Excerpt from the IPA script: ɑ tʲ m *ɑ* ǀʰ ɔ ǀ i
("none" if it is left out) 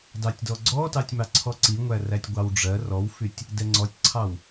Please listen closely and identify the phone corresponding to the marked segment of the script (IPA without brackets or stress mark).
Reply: ɑ